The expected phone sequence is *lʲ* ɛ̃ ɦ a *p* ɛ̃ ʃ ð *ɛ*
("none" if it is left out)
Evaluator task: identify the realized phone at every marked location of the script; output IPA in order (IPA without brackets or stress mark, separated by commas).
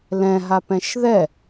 l, p, ɛ